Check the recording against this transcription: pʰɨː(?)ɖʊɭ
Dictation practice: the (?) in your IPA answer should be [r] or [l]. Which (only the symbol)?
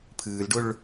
l